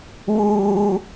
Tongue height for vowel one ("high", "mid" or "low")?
high